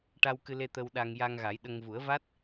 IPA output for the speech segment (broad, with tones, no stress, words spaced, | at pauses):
ʈa˧wkɨ˧le˧ t̪ə˧wɗa˧ŋ ja˧ŋɣa˨˩˦jɗə˧ŋ vu˨˩˦ə̯va˦˥t̚